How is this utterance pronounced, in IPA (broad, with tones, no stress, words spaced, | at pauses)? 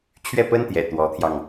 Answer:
t͡ɕʰɥɛ˥˩pə˥nt̪jɛ̰˨˩ t̪wɔ˧˥t̪ʰjɑ˧ŋ